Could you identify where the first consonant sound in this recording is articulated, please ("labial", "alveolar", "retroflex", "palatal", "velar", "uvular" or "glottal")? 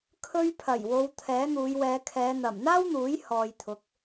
velar